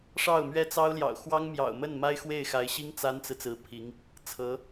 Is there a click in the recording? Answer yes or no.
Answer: no